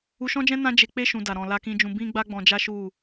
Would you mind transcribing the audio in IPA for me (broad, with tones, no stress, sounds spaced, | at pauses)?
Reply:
u˧ ʃ ɔ̃˦ d͡ʒ ɛ̃˦ n ã˦ d͡ʒ e˧ k͡p e˦ ʃ ũ˧ d a˨ ɾ ɔ̃˨ l a˧ k ĩ˧ d͡ʒ ũ˧ b ĩ˦ ɡ͡b a˦ ɡ͡b ɔ̃˧ d͡ʒ a˦ ʃ u˦˨